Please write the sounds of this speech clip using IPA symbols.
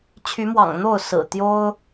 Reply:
t͡ɕʰ y˨˦ m w ɑ̰˨˩ ŋ n̪ o˥˨ ʊ̯ s ɹ̩˨˩ t̪ j o˦ ʊ̯

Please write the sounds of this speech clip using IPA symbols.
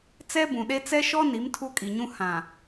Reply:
t͡s ɛ˦ b ũ˨ ɗ e˦ t͡s ɛ˦ ʃ ɔ˦ n i˨˦ m tʰ u˦ kʼ i˨ ɲ ũ˦ h ã˨

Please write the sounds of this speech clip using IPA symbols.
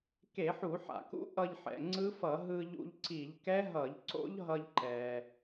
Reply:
k e˧˩˧ ħ u˧˩˧ ħ a̰˩ k ṵ˦˥ ʔ ʌ˧ ʎ ħ ɛ̰˩ ŋ͡ǀ ɯ˦˥ f ʌ˧˩˧ ɦ ɯ˧ ʎ ṵ˧ ʎ ǀ i˧˩˧ ʎ k ɛ˦˥ ɦ ʌ˧˩˧ ʎ ǀ o̰˦˥ ʎ ɦ ʌ˧ ʎ ǃ ɛ˩

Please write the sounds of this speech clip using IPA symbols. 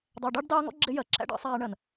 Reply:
dˤ æ˨ ɖ ɑ˦ ɖ d ɑː˦ ŋ ɔ̰˦ ɡ͡ǁ ɪ˦ j ɜ˨ ǁʰ æ̰˦ ɖ ɑ̰˦ sˤ æː˧ ɳ ɜ˨ n

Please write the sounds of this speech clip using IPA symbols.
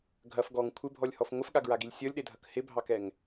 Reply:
ɡʱ ɐ f ɡ ɔ ŋ kʷʰ ɪ bʱ ɔ lʲ h ɔ f ŋʷ ɪ f ɠ a ɡ ɹ a ɡ i lʲ sʲ ɔ lʲ ɗ e dʱ ɐ k h ɪ bʱ ɑ k ɛ ŋ

